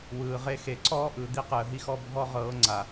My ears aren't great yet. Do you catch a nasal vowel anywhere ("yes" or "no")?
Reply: no